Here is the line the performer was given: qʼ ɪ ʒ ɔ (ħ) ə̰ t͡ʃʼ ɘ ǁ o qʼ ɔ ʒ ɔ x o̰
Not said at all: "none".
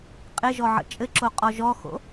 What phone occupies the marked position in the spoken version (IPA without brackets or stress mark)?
ʕ